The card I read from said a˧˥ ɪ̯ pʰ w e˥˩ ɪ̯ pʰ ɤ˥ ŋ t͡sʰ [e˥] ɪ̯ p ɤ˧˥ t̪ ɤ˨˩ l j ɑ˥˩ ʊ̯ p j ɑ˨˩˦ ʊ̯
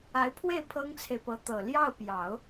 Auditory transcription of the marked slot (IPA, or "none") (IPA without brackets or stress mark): e˨